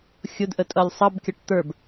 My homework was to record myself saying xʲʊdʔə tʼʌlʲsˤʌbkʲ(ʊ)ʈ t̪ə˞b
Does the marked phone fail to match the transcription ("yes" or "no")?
yes